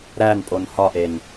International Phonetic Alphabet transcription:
ɾ æ n pʼ o n h ɒ ʔ e n

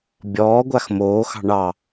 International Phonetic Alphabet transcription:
bʲ ɔː ɡʷ a x m oː x ɑ̤ ɳ ɑ

